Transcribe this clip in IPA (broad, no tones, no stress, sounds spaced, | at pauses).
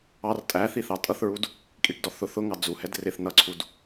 ɑ r tʼ æ θ i θ ɑ tʼ ʌ θ ɹ u d | kʼ i ʈ d ɔ θ ʊ θ ʊ ŋ ɑ d͡z u h ɛ d r ɪ θ n ʌ ǀʰ u d